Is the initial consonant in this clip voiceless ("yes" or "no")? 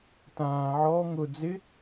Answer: yes